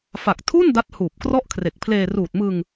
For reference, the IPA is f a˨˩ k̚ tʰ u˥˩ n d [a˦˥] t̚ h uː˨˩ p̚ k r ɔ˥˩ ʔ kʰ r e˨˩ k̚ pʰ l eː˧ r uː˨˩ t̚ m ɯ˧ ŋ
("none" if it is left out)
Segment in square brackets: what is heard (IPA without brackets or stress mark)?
a˦˥